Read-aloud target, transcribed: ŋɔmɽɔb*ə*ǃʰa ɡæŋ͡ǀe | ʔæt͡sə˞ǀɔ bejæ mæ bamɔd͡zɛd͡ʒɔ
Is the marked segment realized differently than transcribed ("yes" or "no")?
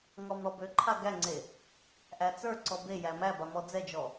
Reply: yes